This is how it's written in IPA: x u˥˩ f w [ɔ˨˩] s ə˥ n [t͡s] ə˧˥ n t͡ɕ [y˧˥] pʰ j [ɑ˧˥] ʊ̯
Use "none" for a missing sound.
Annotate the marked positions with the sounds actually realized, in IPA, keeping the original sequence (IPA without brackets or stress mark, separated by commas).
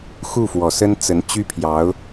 ɔ˨˩, t͡s, y˥, ɑ˧˥